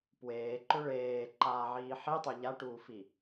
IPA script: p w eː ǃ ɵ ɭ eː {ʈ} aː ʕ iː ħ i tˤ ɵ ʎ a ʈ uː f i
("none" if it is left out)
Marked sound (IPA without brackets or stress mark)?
ǃ